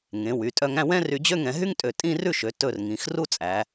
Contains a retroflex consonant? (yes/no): no